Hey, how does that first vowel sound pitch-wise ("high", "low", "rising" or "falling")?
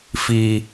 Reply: high